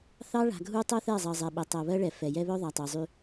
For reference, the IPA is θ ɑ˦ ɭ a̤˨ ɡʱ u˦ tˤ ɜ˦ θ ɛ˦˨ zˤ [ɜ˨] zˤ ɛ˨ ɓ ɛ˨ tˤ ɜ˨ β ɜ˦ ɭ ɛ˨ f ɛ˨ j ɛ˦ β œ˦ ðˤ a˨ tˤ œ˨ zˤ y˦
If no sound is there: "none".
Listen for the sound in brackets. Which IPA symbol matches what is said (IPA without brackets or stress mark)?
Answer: ɜ˨